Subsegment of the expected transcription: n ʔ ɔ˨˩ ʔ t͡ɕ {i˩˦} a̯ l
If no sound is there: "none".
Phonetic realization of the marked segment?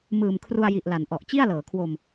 i˥˩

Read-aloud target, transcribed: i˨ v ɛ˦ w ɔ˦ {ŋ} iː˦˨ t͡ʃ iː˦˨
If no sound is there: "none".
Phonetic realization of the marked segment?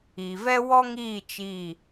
ŋ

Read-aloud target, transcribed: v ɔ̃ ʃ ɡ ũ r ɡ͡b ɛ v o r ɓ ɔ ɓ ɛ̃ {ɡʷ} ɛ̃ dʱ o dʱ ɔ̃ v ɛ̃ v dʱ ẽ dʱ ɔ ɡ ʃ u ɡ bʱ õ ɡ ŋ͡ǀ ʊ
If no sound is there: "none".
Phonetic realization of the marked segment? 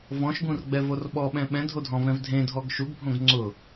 ɓ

